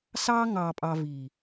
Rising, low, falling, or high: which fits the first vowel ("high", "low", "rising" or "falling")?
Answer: high